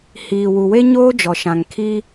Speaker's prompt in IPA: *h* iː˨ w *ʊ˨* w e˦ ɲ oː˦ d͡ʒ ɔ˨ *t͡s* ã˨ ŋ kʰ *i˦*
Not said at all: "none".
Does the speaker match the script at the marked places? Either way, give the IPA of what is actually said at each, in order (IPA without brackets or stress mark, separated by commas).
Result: h, u˨, ʃ, i˦